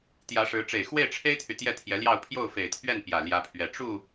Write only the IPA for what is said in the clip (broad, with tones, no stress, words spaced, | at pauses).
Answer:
t̪jä˧˥ʂɻ̩˧˥ ʈ͡ʂe˨˩ɪ̯xwe˥˩ɪ̯ʈ͡ʂʰe˥ɪ̯t̪ʰy˨ t̪jɛ˥˩t̪ʰjɛ˧˥ljɑ˥˧ʊ̯ pʰjo˥˩ʊ̯fe˨˩ɪ̯t̪ʰɥɛ˥˩n pjä˨˩ ljä˧˥pʰɥɛ˨˩ ʈ͡ʂu˥˩